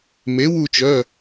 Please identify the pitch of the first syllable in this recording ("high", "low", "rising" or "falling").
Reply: rising